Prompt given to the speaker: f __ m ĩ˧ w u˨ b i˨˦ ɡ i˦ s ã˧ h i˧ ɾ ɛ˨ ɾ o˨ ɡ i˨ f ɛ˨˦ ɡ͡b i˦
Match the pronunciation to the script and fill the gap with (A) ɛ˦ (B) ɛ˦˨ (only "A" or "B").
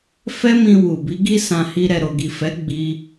A